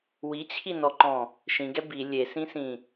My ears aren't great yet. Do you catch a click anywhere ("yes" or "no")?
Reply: yes